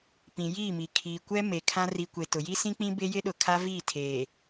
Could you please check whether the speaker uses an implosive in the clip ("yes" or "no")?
yes